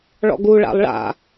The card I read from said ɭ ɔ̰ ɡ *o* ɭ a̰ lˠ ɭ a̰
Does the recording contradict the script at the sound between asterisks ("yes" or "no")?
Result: yes